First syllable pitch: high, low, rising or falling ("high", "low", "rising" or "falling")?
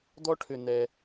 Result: high